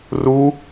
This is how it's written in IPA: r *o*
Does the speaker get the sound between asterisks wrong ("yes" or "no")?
yes